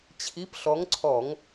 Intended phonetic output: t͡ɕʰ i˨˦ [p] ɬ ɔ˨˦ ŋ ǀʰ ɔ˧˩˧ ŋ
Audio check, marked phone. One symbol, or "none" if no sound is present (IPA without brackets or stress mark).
p